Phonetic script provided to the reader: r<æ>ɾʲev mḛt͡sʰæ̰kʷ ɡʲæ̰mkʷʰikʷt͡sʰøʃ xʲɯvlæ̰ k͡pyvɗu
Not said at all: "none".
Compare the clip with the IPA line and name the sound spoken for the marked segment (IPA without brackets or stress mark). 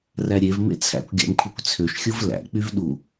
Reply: æ